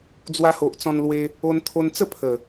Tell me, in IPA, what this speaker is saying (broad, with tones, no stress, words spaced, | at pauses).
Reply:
d͡zwa˧ho˨ʔt͡sɔ̃˧nlwe˧ | o˧nt̪ʰo˧nt͡sə˥˧ pʰə˨˩